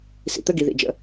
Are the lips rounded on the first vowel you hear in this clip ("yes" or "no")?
no